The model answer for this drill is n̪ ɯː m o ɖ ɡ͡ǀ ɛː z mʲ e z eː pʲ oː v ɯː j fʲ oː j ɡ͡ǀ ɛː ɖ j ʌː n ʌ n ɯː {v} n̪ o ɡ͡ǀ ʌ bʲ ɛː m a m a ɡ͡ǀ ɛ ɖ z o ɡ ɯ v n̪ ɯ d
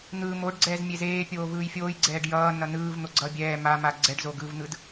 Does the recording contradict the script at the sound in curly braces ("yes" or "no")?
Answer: no